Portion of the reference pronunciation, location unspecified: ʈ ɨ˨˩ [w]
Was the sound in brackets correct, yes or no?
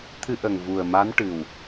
yes